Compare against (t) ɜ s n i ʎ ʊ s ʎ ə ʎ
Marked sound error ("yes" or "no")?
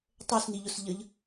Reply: yes